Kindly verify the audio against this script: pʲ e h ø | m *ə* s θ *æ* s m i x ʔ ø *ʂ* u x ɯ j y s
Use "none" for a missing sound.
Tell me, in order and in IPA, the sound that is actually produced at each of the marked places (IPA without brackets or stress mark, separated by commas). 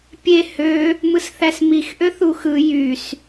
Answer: ɯ, æ, θ